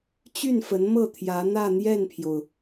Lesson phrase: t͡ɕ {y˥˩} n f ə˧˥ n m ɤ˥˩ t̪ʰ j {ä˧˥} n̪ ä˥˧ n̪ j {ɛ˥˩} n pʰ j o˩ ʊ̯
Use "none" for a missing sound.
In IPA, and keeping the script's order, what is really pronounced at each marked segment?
y˥˩, ä˧˥, ɛ˥˩

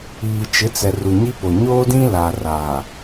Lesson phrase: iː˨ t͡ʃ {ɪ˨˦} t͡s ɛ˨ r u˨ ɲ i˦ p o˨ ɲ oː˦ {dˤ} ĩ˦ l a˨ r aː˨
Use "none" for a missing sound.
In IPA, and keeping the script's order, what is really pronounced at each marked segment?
ɪ˨˦, d

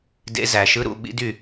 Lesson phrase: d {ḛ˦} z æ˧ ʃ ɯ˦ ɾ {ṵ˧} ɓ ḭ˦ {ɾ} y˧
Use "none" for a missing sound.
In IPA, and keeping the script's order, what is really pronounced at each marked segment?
ḛ˦, ṵ˧, d

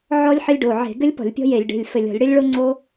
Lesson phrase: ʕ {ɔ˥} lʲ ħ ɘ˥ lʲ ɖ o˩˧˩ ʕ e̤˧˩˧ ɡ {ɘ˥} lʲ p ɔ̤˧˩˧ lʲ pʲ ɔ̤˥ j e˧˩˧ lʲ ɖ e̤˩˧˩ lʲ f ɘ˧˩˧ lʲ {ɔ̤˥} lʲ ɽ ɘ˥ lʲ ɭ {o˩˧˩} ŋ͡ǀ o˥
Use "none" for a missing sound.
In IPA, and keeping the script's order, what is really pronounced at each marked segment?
ɔ˥, ɘ˥, ɔ̤˧˩˧, o˥

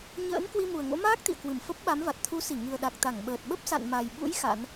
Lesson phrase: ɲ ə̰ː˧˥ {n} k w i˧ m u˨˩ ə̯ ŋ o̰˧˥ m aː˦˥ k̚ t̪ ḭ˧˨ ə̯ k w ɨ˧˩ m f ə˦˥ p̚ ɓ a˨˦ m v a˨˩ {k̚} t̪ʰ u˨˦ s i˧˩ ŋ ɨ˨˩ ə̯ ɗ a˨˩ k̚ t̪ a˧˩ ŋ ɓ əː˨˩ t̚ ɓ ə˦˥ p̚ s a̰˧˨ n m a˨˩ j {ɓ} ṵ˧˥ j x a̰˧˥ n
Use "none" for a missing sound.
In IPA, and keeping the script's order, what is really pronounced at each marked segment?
n, t̚, ɓ

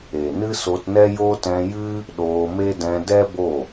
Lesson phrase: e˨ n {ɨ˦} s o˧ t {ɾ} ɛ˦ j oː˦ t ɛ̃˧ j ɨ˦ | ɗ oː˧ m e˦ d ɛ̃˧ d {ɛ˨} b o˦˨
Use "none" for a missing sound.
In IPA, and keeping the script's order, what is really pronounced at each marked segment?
ɨ˦, n, ɛ˦

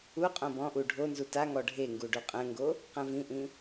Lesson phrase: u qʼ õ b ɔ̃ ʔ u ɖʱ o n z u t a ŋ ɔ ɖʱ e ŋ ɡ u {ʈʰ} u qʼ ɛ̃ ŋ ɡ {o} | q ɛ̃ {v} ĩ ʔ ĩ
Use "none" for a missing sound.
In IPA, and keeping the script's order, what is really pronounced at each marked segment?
ɖ, o, v

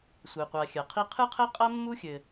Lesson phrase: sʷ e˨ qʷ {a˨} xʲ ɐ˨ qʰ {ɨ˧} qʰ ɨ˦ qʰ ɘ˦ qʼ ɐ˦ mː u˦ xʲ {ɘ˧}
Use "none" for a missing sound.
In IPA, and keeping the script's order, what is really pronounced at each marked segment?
a˨, i˧, ɘ˨

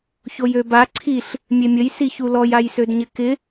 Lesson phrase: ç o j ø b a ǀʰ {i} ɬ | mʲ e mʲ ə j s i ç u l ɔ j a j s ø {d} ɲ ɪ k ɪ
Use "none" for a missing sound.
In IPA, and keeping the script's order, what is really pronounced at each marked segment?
i, d

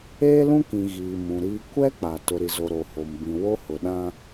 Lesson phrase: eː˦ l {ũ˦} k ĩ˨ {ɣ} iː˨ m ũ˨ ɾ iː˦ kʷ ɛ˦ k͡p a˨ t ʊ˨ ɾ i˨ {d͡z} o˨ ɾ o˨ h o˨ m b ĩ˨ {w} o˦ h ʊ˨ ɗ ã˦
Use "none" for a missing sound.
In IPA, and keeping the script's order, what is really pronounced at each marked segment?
ũ˦, ɣ, z, w

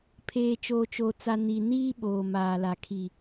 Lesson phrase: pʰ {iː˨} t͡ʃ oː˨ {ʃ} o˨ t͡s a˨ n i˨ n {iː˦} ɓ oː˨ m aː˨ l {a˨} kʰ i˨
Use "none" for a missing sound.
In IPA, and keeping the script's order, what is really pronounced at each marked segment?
eː˨, t͡ʃ, iː˦, a˨

